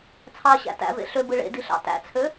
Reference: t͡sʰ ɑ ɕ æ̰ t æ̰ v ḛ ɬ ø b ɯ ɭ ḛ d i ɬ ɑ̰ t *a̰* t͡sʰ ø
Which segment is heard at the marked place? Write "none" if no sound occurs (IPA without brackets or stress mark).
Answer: æ̰